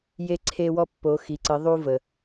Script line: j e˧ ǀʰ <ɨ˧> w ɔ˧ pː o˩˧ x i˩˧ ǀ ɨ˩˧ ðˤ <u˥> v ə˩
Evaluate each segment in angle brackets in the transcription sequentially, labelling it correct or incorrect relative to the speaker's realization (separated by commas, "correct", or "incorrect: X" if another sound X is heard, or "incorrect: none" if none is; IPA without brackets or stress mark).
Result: incorrect: e˧, incorrect: u˧